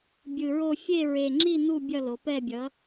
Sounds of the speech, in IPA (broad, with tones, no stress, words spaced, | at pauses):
bʲɯ˨˩ɹo˥˧ fʲe˥˧ ɹe˨˩ŋ͡ǁi˥˧ nu˥˧ bʲʌ˥˧lo˩˧pɛ˥˧bʲʌ˩˥